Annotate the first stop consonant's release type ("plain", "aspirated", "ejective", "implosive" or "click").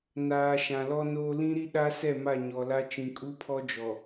implosive